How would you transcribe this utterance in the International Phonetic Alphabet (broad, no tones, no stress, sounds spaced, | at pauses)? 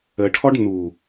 ə ʈʰ ɔ ɖ n u